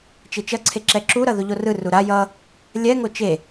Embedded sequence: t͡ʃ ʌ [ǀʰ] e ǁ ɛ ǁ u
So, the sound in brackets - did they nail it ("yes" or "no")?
yes